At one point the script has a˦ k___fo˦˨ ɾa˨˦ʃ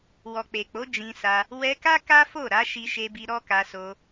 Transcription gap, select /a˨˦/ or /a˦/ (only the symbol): a˦